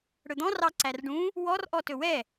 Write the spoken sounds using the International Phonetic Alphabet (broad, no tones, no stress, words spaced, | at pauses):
ɽɵd̪ɔ̃ rɑǀærɖũ | wɔrʔɔ tɵwɛ